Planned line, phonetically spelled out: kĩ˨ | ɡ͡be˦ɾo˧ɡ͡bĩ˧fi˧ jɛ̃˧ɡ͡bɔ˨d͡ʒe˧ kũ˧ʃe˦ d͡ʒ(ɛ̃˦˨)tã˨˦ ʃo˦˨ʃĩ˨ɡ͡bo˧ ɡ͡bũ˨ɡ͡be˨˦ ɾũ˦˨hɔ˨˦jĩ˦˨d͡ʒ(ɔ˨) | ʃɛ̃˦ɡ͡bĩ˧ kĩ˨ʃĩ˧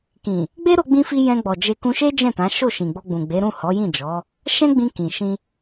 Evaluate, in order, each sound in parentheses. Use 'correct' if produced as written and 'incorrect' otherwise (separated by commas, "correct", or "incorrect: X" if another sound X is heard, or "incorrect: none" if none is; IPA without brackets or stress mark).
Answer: correct, incorrect: ɔ˨˦